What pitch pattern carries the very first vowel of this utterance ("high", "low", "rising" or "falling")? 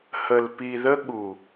low